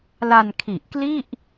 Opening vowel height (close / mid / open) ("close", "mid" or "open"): open